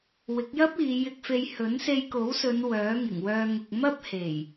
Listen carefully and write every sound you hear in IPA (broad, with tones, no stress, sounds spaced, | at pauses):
w ɪ˨˥ k̚ j ɐ˥ p̚ iː˨˧ j ɪ˧ k̚ f e˧ j h ɵ˨˥ n s e˧ j k o˨˥ w s ɵ˨˧ n w œː˨˥ ŋ ɪ˨˩ ŋ w œː˧ ŋ ʊ˨ k̚ m ɐ˥ p̚ h e˨˩ j